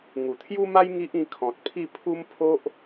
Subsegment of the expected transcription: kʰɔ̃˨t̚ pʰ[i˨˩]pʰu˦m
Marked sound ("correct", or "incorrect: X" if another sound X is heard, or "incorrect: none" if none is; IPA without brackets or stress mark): incorrect: i˥˧